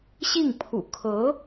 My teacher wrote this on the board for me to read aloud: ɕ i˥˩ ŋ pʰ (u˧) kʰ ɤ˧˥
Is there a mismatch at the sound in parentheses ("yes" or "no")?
yes